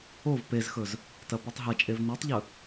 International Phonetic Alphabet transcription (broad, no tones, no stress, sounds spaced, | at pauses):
o v p e z x ɵ z | t ɐ p ʉ tˤ ɦ ɐ t͡ʃʼ e v n ʉ tˤ ʎ ɵ